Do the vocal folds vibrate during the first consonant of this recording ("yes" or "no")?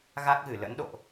yes